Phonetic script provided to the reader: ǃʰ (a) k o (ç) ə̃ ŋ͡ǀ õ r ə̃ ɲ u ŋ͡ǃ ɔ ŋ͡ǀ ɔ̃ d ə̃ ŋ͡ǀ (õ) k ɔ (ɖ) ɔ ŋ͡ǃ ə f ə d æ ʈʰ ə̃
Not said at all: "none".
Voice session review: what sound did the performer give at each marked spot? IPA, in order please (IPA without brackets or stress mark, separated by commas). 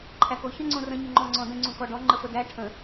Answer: æ, ç, ũ, ɖ